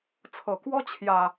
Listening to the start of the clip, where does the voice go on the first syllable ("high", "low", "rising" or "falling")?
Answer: low